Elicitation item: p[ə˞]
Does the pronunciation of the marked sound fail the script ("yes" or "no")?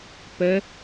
yes